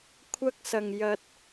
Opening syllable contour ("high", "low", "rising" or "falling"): high